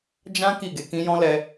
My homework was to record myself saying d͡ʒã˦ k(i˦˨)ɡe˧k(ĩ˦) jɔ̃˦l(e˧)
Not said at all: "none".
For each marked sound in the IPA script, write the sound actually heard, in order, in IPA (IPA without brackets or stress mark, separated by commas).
i˦˨, ĩ˦, ɛ˧